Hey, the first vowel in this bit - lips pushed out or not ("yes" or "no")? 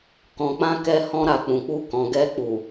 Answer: yes